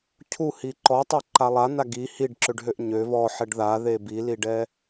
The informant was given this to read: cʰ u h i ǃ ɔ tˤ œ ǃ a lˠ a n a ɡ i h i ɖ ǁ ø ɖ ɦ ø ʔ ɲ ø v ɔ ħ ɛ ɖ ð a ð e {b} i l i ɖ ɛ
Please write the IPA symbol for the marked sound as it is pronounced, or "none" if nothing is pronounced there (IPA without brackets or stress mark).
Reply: b